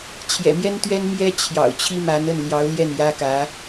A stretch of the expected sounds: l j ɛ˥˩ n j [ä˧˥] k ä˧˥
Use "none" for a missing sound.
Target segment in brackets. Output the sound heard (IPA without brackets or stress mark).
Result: ä˥